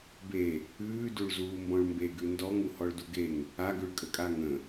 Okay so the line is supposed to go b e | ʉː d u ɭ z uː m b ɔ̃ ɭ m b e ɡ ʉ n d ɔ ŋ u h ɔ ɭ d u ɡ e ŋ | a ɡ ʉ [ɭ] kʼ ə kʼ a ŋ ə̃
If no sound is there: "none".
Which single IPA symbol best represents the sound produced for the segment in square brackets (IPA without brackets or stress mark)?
ɭ